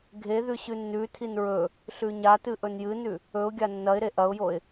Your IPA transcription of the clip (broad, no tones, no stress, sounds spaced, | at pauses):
ɡʱ e ð ʉ ɕ ʉ nː ʉ tʰ i n ɹ ɵ | ɬ ʉ ɲ a t ɨ ʔ ɵ n j ɨ n ʉ | ɵ ʊ̯ ɡʲ a nː ɐ ɪ̯ ɾ e ʔ ɐ ʊ̯ j o ɪ̯